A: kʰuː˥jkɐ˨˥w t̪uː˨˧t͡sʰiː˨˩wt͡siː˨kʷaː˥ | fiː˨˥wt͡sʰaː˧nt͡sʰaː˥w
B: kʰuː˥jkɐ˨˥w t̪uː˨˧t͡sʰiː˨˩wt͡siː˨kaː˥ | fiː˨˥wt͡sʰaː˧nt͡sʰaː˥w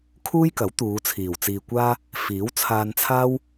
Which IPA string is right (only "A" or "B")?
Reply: A